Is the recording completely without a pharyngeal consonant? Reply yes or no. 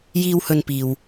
yes